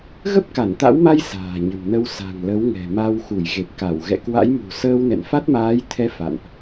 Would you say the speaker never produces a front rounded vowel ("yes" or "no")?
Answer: yes